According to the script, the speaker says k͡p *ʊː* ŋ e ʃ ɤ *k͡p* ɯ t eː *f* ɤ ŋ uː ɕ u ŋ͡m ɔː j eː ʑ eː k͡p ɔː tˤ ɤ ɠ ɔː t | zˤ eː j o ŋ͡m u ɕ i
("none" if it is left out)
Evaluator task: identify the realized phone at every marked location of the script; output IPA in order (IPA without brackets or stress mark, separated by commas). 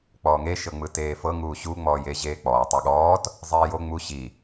ɔː, ŋ͡m, f